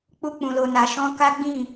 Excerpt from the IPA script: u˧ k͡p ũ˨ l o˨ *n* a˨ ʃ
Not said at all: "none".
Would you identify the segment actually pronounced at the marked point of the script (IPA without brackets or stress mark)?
n